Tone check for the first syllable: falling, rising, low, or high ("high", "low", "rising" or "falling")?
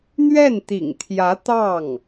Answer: falling